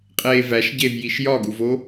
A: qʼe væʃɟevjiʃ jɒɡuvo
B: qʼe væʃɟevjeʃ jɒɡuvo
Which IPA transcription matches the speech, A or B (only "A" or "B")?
A